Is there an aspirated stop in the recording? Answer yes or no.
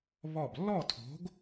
yes